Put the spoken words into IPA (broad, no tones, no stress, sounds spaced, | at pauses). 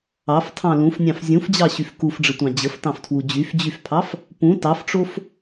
ɑ f tʰ ɑ̃ l ũ f nʲ ɑ̃ f zʲ ũ f d͡ʑ ɑ ɕ y f k u f ɖ͡ʐ ə tʷ ɑ̃ d͡ʑ ə f t ɑ̃ f tʰ w u d͡ʑ y f d͡ʑ y f pʰ ɑ f | p ũ t ɑ f ʈ͡ʂ o f